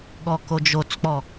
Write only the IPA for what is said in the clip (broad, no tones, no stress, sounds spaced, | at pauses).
ɠ ɔ k o d͡ʒ o t͡s k͡p ɔ